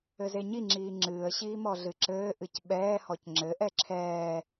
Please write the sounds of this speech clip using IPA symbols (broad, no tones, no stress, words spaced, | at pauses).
ɘzeɲiŋ͡ǁiː ŋ͡ǁɨːə̯ɕiː mɔɮɨǁɘːʔɨc ɓɛːhɔc ŋ͡ǁɘʔɛ ǁʰɛː